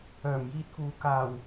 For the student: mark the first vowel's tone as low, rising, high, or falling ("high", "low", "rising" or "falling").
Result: low